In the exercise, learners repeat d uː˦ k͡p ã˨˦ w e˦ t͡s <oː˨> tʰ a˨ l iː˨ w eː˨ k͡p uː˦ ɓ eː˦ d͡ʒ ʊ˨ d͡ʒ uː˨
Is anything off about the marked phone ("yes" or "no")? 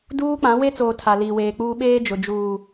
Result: no